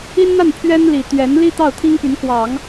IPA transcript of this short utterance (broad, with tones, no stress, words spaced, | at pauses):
i˥nn̪a˥˩npʰɥɛ˥nli˨˩ t̪ɥɛ˧˥nli˥ t̪ɑ˥˩ʊ̯t̪ʰi˥ŋpy˧˥nkwɑ˨˩˦ŋ